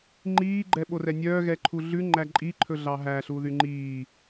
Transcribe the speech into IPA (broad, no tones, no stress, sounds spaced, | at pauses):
ŋ͡ǃ iː ɡ͡ǃ ɛ ɓ o r ɛ nʲ œː ɣ ɛ ǃʰ u ɮ ʉ ŋ͡ǃ æ ǃʼ i ǃʰ ɵ ɮ ɑ ɦ æ ɬ u ð y ŋ͡ǃ iː